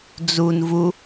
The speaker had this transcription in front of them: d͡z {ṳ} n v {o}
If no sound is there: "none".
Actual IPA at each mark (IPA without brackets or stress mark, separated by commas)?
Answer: u, u